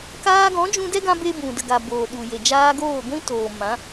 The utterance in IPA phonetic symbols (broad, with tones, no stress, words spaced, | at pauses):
kaː˧ɡɔ̃˨˦ d͡ʒũ˧dɛ˦ɡã˧be˧ bũ˨də˨ɡa˨ boː˨ɗu˨je˨ d͡ʒaː˧ɡoː˦˨ɡʷĩ˦ toː˨mã˨˦